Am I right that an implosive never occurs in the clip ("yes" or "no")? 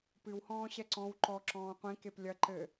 yes